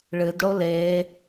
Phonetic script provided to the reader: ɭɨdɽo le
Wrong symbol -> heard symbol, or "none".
none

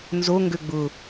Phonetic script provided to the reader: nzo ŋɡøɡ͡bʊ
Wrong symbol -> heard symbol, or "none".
none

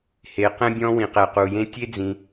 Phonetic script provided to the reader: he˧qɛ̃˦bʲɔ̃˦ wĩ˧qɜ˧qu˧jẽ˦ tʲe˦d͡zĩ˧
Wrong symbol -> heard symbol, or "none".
ɜ˧ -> ɛ˧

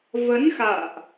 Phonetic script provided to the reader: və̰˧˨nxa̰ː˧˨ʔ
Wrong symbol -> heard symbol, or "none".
ə̰˧˨ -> ə˨˦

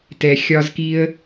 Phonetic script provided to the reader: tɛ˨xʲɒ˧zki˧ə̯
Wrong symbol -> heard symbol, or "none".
none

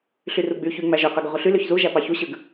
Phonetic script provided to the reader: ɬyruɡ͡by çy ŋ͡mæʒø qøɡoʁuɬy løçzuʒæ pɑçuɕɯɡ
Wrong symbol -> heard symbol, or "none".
none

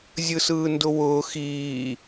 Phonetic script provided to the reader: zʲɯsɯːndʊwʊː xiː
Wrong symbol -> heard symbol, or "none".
none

